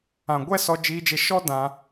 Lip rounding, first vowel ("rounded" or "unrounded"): unrounded